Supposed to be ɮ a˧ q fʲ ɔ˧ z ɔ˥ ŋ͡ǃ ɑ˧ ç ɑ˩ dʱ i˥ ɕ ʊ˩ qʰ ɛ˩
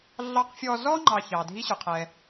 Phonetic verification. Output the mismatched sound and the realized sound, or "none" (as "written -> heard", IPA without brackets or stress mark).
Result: a˧ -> ɑ˧